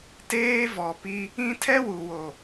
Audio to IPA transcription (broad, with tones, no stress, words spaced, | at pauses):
teː˦vɔ˨pi˦ | ĩ˦ tʰɛ˦wu˨wo˨